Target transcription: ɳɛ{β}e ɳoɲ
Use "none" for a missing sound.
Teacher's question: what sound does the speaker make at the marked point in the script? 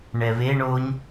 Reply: β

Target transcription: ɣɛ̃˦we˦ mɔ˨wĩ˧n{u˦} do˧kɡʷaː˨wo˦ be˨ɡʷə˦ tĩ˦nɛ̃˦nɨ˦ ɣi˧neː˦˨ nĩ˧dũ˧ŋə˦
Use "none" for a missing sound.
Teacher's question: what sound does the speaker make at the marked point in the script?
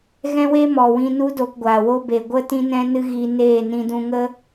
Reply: u˦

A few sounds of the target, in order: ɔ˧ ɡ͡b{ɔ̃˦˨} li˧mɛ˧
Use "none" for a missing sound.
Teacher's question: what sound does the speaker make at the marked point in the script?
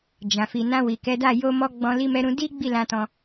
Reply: ɔ̃˧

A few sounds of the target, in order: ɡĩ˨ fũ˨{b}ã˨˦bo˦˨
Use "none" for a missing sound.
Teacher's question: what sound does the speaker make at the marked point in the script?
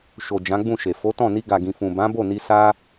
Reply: b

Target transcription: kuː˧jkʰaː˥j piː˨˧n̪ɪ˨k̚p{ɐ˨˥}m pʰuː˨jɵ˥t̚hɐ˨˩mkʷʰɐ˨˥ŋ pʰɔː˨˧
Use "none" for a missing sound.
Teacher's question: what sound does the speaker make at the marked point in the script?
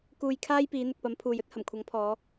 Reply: ɐ˨˥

